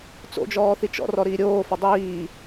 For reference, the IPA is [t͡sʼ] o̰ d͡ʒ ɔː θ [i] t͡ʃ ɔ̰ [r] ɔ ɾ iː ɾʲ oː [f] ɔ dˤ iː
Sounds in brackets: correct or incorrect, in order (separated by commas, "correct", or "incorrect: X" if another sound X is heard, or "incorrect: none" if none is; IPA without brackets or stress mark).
incorrect: t͡s, correct, correct, correct